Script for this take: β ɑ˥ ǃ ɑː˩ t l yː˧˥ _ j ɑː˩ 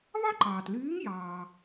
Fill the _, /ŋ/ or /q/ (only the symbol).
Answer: ŋ